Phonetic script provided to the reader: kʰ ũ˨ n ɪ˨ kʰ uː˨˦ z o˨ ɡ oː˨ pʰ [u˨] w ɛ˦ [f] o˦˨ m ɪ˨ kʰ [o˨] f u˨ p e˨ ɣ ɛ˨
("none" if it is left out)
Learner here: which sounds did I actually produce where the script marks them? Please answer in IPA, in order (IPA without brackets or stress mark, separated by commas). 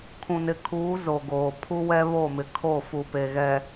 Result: u˦, β, o˦˨